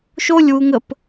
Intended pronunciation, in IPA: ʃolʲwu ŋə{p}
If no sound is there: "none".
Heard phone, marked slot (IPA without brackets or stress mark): p